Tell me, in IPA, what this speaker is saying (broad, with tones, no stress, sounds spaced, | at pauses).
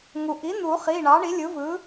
ŋ u˩ ʔ i˩˥ n̪ u˨˩˦ χ i˩˧˩ ɳ ɑ˩˥ ɳ i˩˥ lʲ ɯ˩˥ v ɯ˩˥